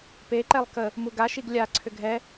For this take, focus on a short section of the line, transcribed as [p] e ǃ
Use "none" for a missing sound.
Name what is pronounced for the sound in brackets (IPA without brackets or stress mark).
p